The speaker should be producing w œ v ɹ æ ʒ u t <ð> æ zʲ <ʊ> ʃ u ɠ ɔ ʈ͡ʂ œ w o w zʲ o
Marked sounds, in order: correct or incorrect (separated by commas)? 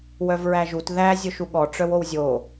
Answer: correct, correct